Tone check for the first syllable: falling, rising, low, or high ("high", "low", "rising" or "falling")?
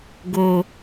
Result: low